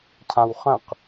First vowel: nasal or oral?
nasal